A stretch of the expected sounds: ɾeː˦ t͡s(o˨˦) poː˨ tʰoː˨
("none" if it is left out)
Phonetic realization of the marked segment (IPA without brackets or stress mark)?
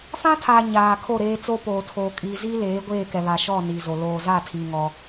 o˦